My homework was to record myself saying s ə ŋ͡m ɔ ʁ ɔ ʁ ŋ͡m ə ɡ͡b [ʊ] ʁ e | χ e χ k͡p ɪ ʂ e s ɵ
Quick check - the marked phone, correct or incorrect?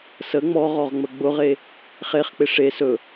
correct